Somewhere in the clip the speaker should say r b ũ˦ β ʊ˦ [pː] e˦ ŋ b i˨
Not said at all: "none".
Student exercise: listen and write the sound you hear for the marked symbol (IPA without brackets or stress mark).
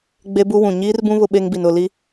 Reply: ɓ